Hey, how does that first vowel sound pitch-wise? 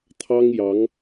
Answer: high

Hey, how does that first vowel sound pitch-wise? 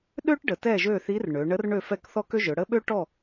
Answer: high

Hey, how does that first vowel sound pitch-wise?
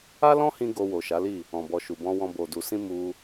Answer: high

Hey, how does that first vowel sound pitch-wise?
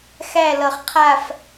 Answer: falling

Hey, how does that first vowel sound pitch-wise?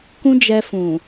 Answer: high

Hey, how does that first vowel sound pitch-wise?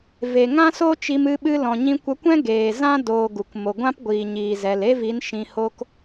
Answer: low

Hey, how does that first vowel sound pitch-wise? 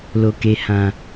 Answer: low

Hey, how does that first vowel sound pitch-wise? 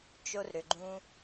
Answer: high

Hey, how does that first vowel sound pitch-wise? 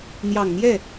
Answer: low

